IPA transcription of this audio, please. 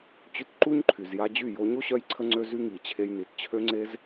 t͡ɕ y˧ t ǃ u˦ ɲ ǃʰ y˨ z j a˧ d͡ʑ y˦˨ j o˧ ɲ o˦ ɕ œ˧ j ǀʰ ə˧ ŋ͡ǀ ø˦ z y˦ ŋ i˨ t͡ɕʰ e˧ j n i˨ t t͡ɕʰ ø˦ ŋ͡ǀ e˦ z

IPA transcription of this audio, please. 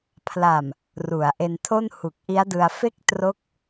pʰ l a˨˩ m | r u˩˦ a̯ ʔ e˧ n tʰ o˥˩ n h u˨˩ k̚ ʔ i˦˥ a̯ d ɯ˧ a̯ f e˥˩ k̚ t r o˦˥ k̚

